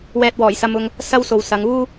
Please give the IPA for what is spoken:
w ɛː˧ t̚ w ɔː˨˩ j s ɐ˧ m ʊ˧ ŋ | s ɐ˥ w s o˨ w s ɐ˨˧ ŋ uː˥

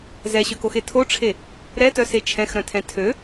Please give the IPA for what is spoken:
z ɛ ɕ ø k o x e tʰ o ʈ͡ʂʰ e | ɾ ɛ t œ s e t͡ʃʰ ɛ̃ x ɾ œ̃ tʰ ɛ̃ tʰ ø

